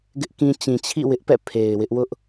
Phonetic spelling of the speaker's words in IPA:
ɡ ɪ˦ ʔ k ĩ˦ t͡ɕ ĩ˨ t͡ɕʰ ḭ˦˨ w ɪ˦ ʔ p ɛ̰˦˨ pʰ e˨ ɪ̯ w ɪ˦ ʔ w ʊ˦ ʔ

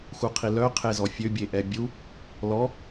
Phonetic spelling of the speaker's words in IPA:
x u qʰ i l œ qʰ e z ɔ fʲ ø bʲ e ʔ ɛ bʲ u | l ɔ

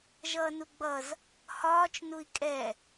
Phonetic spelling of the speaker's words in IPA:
ʒ ʌː n u ɡ͡b ʌ z | h ɒː t͡ʃ n u i̯ kʼ ɛ

